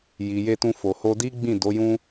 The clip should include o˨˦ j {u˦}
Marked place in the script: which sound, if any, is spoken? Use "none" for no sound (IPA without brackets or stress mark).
ũ˦